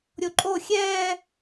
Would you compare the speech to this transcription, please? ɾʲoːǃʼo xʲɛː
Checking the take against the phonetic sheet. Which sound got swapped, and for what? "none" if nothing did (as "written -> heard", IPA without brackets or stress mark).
oː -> o